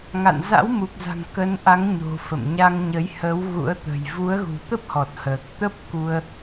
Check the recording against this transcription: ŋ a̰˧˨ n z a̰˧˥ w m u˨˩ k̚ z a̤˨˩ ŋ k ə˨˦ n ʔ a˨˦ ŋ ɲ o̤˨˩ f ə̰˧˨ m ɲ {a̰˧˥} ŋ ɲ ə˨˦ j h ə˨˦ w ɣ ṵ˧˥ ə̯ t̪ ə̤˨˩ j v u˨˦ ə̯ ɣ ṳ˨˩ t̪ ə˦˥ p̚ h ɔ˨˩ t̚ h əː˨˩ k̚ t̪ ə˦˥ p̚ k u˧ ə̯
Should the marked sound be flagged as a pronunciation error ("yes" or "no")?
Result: yes